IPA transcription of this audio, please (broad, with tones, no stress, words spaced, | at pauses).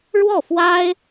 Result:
ɻwɔ˥˩fwa˥ɪ̯